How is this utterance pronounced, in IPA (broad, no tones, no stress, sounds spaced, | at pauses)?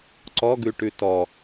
ǀ ɔ ɡ ʉ ʈ ʉ t ɔ